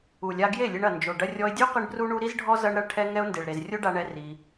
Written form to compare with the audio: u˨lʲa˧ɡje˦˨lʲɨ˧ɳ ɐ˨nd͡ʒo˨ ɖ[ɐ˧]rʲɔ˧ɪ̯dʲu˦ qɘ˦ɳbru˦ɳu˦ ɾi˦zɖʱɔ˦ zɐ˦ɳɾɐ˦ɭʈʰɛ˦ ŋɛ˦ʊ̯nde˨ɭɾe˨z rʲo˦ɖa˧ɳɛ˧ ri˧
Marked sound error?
no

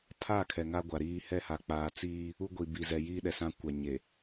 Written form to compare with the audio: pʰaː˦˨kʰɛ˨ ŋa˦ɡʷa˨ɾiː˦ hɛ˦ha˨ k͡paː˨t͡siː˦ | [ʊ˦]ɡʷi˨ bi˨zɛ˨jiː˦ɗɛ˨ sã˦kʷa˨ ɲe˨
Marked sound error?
yes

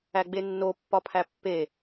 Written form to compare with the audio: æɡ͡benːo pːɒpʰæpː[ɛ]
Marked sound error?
yes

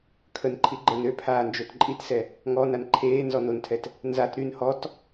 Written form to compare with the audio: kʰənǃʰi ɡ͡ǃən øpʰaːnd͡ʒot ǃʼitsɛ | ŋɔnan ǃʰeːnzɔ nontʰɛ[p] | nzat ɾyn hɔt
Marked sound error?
yes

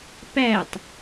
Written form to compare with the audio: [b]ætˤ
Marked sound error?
yes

